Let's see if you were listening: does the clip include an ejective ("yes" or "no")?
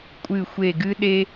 yes